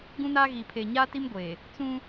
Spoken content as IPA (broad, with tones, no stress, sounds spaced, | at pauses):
ɡ ũ˦ n aː˦ ɣ iː˨ pʰ eː˨ ɲ aː˦ t i˦ m ɡʷ eː˨ | t͡s ũ˦